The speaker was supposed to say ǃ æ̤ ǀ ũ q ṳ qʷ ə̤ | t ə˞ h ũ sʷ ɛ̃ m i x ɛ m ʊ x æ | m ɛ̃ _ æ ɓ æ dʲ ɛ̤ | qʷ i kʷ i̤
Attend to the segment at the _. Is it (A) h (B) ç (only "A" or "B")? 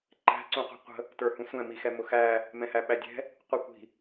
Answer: A